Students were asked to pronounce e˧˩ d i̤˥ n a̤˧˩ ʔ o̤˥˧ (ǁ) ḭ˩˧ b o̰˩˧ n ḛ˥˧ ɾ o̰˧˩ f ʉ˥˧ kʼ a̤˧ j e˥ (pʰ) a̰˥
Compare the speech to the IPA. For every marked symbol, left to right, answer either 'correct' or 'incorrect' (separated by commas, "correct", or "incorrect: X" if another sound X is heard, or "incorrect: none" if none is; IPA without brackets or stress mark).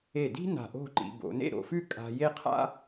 incorrect: ǃ, incorrect: qʰ